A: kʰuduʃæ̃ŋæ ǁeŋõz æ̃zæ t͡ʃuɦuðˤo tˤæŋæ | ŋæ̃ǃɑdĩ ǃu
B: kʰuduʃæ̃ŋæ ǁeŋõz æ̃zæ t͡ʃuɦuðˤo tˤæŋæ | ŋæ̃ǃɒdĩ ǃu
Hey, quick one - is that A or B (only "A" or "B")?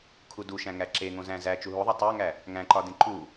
B